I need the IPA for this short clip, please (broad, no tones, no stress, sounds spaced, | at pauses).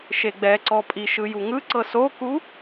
ʃ e ɡ͡b ɛ ǀ ɔ pʼ i ʃ ɯ j u ŋ ɯ ǀ ɤ s o k u